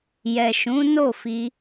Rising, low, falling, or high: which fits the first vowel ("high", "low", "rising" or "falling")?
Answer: low